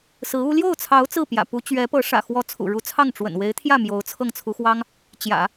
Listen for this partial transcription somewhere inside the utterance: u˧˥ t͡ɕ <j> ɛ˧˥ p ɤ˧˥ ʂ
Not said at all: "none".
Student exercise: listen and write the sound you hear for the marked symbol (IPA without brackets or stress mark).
ɥ